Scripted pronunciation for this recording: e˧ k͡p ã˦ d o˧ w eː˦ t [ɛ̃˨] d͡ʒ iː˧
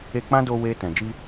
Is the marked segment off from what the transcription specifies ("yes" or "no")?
no